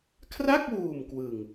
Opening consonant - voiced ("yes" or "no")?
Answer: no